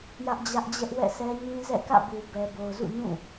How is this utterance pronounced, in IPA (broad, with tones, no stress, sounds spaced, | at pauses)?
j ä˦ ʔ d͡ʑ ä˦ ʔ d͡ʑ ɛ˦ ʔ w ɛ̰˦˨ sʰ ɛ˦ ɲ ĩ˦ z ɛ̰˦˨ k ä̰˦˨ b u˨ b ɛ˨ b o˨ ʊ̯ z ṵ˦˨ ɲ ũ˦˨